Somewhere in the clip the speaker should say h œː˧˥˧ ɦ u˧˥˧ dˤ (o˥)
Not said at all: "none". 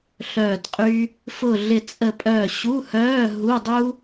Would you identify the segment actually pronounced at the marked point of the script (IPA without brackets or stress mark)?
u˥